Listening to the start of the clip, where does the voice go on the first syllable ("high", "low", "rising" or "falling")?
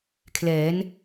rising